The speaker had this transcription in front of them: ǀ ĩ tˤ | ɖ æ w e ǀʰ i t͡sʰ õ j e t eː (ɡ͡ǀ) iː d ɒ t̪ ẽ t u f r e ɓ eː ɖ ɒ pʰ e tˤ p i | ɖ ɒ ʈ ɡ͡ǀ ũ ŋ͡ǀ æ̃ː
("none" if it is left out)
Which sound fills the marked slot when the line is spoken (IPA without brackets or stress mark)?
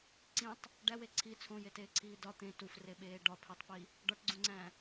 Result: ǀʰ